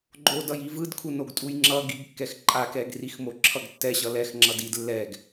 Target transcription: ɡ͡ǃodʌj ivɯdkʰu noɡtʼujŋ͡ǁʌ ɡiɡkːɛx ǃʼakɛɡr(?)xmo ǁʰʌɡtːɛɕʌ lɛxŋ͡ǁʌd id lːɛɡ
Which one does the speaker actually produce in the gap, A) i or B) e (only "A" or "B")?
A